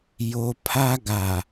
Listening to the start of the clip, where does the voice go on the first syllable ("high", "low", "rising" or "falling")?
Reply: high